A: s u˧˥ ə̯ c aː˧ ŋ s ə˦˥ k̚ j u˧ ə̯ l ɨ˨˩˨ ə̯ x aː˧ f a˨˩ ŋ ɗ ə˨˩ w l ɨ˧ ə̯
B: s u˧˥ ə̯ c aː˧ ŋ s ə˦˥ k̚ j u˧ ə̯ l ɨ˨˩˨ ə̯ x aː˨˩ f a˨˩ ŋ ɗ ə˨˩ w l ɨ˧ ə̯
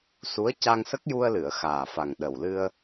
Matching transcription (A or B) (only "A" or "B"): B